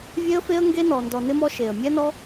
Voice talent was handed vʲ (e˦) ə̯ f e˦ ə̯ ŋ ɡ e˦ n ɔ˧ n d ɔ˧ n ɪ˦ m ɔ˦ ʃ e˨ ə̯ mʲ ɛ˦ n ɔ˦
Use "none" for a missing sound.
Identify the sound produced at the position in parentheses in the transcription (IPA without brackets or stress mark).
e˦